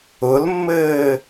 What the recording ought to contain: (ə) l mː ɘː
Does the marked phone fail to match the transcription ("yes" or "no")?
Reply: yes